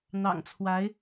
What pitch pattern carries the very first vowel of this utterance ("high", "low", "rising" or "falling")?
low